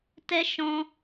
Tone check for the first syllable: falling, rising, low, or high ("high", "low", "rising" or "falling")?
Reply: high